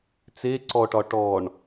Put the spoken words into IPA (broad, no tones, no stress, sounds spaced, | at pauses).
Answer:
t͡s e ǀ ɔ ʈ ɒ ʈ ɔ ɳ